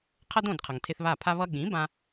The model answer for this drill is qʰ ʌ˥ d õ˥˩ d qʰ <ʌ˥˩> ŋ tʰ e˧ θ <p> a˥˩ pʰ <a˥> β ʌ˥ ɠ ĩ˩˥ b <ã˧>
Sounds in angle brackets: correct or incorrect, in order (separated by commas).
incorrect, incorrect, correct, correct